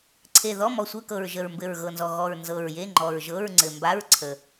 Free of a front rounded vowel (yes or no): yes